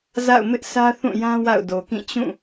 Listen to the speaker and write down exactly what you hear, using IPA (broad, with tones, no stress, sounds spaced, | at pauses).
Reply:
z a̰˦˨ ʊ̯ m ɪ˦ ʔ s ä˦ θ ũ˦˨ j ã˦ w a̰˦˨ ʊ̯ d o˨ k ĩ˦˨ t͡ɕ ũ˦˨